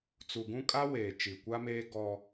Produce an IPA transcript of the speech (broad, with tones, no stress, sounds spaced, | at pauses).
t͡s u˨ ɡ ũ˦ kʼ a˦ w eː˨ t͡ʃ i˨ kʷ a˦ m eː˦ ɡ ɔ˦